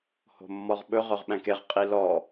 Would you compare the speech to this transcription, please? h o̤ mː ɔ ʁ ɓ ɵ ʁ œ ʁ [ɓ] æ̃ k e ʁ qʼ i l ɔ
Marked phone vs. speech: correct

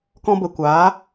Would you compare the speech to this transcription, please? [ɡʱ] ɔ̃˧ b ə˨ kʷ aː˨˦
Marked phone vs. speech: incorrect: k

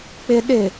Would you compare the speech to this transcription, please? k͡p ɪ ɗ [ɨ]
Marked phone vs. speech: incorrect: ɪ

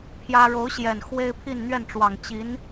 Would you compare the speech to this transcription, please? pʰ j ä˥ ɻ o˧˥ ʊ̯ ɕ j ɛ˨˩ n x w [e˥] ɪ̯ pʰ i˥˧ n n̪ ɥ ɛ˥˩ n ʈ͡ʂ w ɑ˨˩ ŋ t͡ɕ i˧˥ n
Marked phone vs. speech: correct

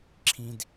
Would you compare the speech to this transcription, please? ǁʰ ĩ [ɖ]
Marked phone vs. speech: incorrect: d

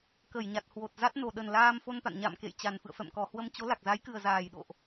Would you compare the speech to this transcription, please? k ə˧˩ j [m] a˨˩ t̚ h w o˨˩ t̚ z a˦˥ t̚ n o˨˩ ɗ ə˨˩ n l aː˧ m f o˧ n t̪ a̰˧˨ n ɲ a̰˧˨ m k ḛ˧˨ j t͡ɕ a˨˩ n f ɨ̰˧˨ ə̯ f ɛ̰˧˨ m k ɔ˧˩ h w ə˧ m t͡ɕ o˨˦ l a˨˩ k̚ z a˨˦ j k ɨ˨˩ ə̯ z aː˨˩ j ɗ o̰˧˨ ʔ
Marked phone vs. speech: incorrect: ɲ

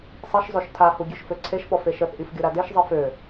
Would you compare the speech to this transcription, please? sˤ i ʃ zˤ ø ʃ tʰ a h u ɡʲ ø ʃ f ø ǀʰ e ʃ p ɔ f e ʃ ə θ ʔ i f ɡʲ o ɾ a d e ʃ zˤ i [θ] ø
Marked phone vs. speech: incorrect: f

